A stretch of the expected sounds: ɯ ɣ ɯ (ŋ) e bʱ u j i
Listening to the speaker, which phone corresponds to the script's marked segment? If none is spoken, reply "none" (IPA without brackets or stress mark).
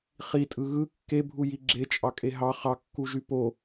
kː